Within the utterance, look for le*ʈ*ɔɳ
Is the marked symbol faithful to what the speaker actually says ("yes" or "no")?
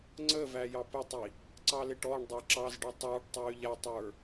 yes